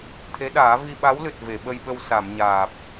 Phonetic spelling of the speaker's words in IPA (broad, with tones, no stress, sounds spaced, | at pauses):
t̪ʰ e˧˥ ɗ aː˨˩˦ v i˧ ɓ a˧˥ w l ɨ˨˩ t̚ v e˨˩˨ ɓ ə˧ j ɓ ə˧ w s a˨˩˨ m ɲ aː˨˩ p̚